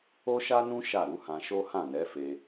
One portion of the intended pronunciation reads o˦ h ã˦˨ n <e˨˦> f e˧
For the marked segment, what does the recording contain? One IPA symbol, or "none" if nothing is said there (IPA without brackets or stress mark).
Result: ɛ˨˦